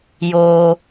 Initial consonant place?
palatal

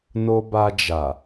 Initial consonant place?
alveolar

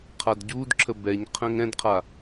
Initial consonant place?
uvular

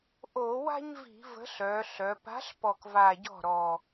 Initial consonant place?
glottal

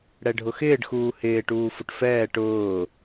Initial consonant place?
retroflex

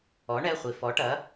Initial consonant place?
retroflex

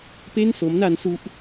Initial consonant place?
labial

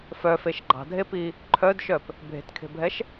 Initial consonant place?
labial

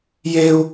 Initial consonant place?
palatal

